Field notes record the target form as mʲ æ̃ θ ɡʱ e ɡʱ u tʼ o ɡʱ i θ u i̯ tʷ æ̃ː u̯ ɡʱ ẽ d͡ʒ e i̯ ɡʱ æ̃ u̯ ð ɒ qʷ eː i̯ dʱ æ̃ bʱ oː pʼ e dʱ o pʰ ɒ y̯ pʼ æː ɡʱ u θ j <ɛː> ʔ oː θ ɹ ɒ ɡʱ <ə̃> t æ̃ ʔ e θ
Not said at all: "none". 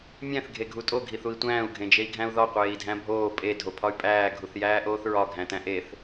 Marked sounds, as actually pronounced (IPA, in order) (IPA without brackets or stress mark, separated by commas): æː, æ̃